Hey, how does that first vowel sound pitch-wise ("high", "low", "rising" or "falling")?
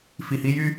low